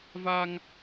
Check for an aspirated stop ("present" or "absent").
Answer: absent